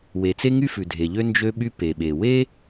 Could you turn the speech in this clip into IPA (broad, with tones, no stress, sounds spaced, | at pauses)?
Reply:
w e˩ t͡s e˥ ŋ y˥ f ʉ˩ dʱ e˩ ʎ ø˥ n d͡ʒ ø˥ ɓ y˥ p e˩ ɓ e˩ w e˥